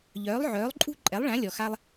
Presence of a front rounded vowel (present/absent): present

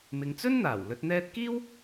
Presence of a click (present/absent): absent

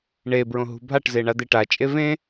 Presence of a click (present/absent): absent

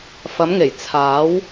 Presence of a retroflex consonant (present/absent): absent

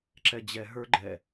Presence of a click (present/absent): present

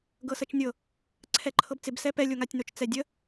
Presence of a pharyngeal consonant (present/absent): absent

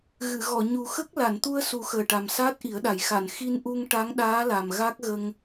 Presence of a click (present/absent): absent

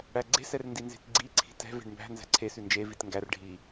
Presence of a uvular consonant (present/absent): absent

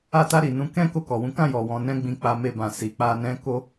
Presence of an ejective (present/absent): absent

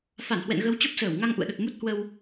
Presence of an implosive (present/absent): present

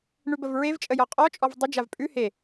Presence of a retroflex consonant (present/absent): present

